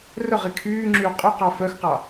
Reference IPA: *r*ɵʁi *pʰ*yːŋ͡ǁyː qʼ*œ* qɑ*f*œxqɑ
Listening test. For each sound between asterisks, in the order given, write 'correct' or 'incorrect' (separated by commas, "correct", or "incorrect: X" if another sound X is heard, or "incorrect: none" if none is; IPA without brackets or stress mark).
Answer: correct, incorrect: kʰ, incorrect: ɵ, correct